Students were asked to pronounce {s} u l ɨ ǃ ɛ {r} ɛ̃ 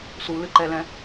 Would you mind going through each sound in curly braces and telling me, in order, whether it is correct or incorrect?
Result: correct, incorrect: l

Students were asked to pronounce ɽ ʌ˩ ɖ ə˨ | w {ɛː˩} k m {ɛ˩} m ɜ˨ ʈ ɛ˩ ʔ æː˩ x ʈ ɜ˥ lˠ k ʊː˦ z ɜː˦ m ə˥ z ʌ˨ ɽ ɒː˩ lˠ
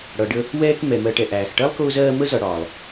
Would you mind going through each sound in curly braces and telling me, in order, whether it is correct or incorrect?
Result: incorrect: ɛː˦, correct

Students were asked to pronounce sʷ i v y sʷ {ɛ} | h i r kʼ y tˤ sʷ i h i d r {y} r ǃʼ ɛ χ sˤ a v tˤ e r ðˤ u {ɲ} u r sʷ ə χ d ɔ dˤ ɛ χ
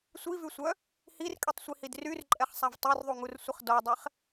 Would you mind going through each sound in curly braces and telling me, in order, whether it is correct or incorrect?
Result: incorrect: œ, correct, incorrect: ŋ

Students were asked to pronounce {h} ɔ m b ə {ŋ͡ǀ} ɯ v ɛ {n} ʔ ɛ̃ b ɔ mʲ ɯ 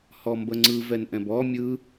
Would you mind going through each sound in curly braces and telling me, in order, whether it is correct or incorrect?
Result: correct, correct, correct

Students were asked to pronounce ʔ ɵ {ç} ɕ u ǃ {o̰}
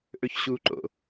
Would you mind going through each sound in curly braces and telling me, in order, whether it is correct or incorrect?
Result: correct, correct

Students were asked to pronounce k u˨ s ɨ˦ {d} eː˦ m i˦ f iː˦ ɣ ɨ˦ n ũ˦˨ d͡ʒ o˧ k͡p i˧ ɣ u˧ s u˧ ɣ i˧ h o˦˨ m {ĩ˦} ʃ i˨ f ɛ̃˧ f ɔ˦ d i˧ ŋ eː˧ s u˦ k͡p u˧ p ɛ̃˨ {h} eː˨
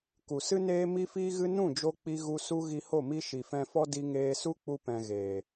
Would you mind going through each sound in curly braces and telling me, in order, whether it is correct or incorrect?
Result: incorrect: n, incorrect: i˦, incorrect: ɣ

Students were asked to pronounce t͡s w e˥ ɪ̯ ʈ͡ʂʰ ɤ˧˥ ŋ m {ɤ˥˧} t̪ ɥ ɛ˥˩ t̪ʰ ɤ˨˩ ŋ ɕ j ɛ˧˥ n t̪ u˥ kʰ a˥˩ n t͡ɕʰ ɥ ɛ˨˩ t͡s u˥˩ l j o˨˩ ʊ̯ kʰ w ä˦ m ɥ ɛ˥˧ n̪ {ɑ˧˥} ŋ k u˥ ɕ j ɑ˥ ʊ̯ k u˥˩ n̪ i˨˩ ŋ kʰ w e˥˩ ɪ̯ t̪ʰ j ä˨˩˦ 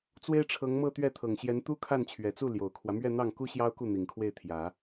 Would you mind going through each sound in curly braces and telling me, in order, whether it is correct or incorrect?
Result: correct, incorrect: ɑ˥˩

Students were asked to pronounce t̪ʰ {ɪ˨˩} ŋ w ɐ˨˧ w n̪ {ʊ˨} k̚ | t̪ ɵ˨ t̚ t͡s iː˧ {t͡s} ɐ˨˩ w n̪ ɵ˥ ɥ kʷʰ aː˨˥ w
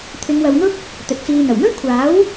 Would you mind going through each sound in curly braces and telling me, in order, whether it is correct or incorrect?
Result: incorrect: ɪ˨˧, incorrect: ʊ˥, incorrect: n̪

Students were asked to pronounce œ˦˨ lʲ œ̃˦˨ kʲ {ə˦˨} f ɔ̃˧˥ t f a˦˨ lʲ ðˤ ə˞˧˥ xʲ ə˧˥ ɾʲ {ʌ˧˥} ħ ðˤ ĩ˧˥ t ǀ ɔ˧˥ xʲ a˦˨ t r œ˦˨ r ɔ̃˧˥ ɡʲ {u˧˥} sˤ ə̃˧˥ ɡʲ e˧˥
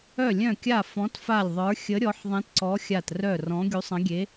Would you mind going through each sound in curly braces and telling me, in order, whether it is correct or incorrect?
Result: incorrect: a˦˨, incorrect: ɔ˧˥, correct

